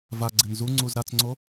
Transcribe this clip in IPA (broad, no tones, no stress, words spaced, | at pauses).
vaɡ͡ǀɪn zuŋ͡ǀuz ɾat͡sŋ͡ǀo